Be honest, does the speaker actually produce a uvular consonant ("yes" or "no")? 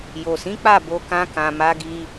no